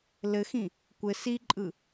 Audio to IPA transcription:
l ɘ x ĩ | kʷ ɘ s i ǃʼ ɯ

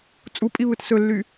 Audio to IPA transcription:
t͡sʼ u pʼ i β ɯ t s ɵ lː y

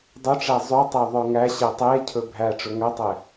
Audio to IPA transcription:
dˤ ɵ ʈ͡ʂ æ zˤ ɵ tˤ æ ðˤ œ ŋ æ ɕ ɛ tˤ e cʰ ɵ bʱ æ ʈ͡ʂ ɵ ŋ œ tˤ ɛ

